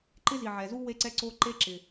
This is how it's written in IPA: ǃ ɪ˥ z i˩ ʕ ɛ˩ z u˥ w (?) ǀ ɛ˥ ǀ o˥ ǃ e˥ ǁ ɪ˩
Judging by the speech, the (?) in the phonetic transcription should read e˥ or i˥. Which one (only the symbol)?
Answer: e˥